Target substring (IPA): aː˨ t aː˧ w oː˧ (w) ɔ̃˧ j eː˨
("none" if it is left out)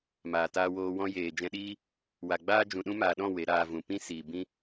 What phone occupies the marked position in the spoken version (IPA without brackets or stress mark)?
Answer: w